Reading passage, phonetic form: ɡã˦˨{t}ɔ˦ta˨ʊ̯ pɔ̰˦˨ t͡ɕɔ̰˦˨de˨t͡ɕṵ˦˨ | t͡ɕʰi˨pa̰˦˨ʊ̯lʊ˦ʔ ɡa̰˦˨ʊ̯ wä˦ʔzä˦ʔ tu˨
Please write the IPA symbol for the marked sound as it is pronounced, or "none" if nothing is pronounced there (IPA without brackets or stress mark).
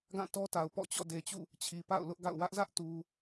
t